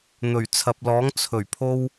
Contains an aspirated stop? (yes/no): yes